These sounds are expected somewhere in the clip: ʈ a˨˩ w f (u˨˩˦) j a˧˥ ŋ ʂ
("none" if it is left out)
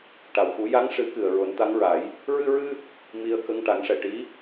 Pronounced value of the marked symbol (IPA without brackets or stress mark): u˨˩˦